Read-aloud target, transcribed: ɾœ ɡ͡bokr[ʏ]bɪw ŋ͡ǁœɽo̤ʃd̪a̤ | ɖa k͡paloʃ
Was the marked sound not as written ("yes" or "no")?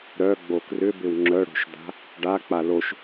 no